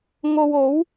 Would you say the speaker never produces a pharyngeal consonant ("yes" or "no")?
yes